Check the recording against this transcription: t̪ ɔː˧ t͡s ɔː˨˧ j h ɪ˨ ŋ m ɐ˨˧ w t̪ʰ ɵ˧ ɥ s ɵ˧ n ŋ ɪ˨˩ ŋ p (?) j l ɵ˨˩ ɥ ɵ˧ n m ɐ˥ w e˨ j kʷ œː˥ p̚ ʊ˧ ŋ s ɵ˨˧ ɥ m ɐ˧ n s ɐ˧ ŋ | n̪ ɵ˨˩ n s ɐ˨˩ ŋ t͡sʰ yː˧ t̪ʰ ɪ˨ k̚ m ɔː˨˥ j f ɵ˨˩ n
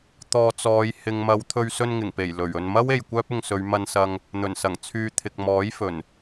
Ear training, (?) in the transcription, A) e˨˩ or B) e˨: A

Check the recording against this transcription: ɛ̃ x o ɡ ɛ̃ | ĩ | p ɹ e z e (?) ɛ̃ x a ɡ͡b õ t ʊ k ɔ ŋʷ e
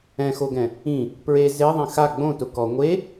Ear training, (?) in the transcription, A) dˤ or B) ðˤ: B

